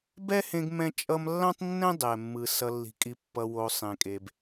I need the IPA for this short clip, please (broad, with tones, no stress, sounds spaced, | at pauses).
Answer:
b ɛ˦ h ẽ˧ ɡ m ɛ̃˧ t͡ʃʼ ʌ˧ m lː ã˦ tˤ nː ɛ̃˦ dˤ ɛ˨ mː ɯ˨ s ʌ˨ lː i̤˨ kʼ i˨ pː ʌ˨ w o˨ sˤ ẽ˨ kʼ e˨ b